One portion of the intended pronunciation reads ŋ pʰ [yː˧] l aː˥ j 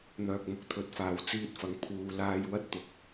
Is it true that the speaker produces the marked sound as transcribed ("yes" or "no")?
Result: no